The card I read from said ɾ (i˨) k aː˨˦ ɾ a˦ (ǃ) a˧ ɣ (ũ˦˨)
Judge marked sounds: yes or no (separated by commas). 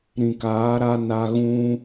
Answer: no, no, no